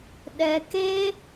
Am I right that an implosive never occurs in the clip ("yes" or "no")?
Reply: no